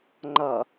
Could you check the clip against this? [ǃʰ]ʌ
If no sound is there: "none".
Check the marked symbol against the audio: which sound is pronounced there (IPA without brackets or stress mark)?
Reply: ŋ͡ǃ